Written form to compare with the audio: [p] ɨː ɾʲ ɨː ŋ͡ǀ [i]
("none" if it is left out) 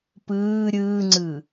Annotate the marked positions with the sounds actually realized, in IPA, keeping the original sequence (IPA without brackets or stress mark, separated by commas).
p, ɨ